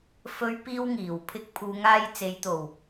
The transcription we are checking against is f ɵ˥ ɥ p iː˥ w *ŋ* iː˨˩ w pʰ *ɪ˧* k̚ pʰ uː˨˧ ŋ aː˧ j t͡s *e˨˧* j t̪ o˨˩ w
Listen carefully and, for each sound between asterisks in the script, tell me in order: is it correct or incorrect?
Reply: correct, correct, correct

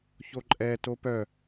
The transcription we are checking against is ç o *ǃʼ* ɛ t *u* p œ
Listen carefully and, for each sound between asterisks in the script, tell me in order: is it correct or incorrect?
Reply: correct, incorrect

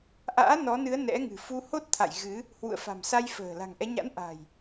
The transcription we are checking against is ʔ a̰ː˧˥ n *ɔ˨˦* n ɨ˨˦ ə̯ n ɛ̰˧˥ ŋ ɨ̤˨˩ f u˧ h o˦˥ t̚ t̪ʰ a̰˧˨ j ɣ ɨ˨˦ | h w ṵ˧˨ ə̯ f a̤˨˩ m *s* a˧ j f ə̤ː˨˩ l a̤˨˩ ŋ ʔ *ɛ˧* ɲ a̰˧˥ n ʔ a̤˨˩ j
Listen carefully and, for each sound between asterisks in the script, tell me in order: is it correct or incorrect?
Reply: correct, correct, incorrect

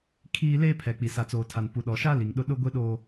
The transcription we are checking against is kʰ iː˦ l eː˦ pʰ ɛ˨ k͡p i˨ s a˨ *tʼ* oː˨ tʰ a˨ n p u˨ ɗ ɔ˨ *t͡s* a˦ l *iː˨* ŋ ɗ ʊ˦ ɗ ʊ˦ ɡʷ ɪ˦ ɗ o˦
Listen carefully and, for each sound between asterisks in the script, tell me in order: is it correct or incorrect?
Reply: incorrect, incorrect, incorrect

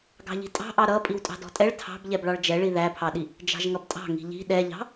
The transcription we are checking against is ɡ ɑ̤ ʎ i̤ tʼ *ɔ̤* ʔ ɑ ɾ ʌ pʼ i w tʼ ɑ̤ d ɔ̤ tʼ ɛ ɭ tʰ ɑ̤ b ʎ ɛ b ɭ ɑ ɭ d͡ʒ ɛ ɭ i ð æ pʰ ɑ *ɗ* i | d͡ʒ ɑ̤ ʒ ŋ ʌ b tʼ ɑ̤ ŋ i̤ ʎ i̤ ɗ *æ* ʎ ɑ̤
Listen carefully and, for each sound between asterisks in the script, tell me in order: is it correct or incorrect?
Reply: incorrect, correct, incorrect

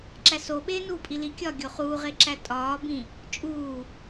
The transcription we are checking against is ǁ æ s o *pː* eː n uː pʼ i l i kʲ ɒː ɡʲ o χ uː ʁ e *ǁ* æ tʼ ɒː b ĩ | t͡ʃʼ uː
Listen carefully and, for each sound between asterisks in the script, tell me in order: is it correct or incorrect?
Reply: incorrect, correct

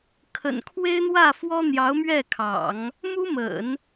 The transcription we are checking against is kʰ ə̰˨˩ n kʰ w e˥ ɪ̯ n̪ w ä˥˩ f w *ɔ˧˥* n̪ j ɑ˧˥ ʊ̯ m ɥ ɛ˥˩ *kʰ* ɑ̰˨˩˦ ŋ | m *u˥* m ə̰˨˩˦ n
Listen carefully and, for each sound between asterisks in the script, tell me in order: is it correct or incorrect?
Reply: incorrect, correct, correct

